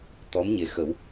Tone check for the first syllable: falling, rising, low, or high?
rising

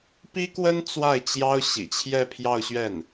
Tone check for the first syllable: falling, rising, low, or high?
high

